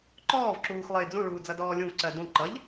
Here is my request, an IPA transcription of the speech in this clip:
ǃɔːvǁuːxlˠɪː d͡zũɭuːd͡zʌdɔː lʲũvǀɜ dũ ǃʌʎ

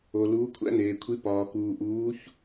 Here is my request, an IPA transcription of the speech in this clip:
o˩ luː˩˧kʷʰæ̰˧neː˩kʷʰi˩˧ pɒː˩kuː˩ ʔuː˩˧ç

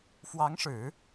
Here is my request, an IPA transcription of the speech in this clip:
fwɑ˧˥ŋʂɻ̩˨˩˦

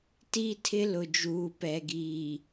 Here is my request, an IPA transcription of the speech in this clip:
ti˦ tʰɪ˦lʊ˨d͡ʒuː˨ pɛ˨ɡiː˨

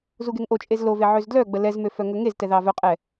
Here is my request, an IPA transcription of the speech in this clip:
zuɡeŋʔot͡ʃʼez love ʕøzdlœɡ͡bə lɛzmø fœŋɵŋeztɛ ðɑvœqʼɛ

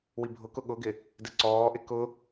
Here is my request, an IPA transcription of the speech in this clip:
wibʱʊkʊ ɠʊɡɪ | dɪǀɔːʔɪ kʊ

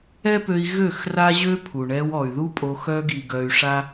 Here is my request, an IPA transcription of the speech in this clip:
ɛ˦pø˧i̯ ɣø˦˨xra˦ ʑø˦pʰu˨ɳɛ˧w ɔ˨y̯ðu˦pʼo˧ xœ˧ɡi˨ ɡœ˧y̯ʂa˦

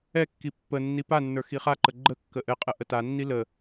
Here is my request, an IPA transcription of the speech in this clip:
ɛkːi pːənːi panːə˞ xiχaǃə ɡ͡ǃə kːəʔɘqʼə ʔətanːi lə

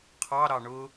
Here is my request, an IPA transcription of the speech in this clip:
qʰɑɾɑ ɳʊ

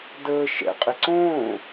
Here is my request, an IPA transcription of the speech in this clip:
dəː ʃɛ̰ qʼeǀõː

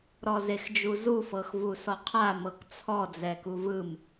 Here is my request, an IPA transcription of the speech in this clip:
ɾɔzexd͡ʒuzu fɤxvusɔqʰa mɤkt͡sʰɔ d͡zɛkuvɯm

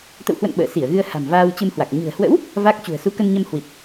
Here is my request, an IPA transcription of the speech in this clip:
t̪ə̰˧˨whwə̰˧˨n ɓə̰ː˧˨ si˧˩ə̯ɣɨ˧ə̯ ha̤˨˩mvaː˧wt͡ɕɨ˧mhwa˨˩k̚ ɲɨ̤˨˩ə̯hwə̰˧˥w | va˦˥k̚ t͡ɕṳ˨˩ə̯su˨˦ kə˧nɲə˧mhwi˨˩t̚

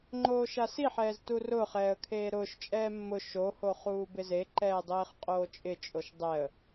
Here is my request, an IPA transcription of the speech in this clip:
ŋ͡ǃoːʃasiħɛːz turʊːχɛːə̯ kʰeːɾʊːʃt͡ʃʼɛː mːʊ ʃoho χuːbɪzeǃɛː dˤeːχqʼoːt͡ʃʼɪt͡ʃʼoʃ dˤɛə̯

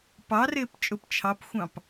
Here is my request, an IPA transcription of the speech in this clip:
pɑrɪːp t͡ʃʼʊp t͡ʃʰɑpxʷɑ̃p

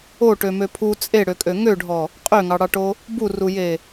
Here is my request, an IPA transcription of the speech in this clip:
oʈømø pʰu t͡sʼeɽøkʼø ŋøɖʱɔ | qʼøŋɑɽɑʈo | buruje

